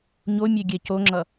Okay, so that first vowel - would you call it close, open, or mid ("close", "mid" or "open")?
mid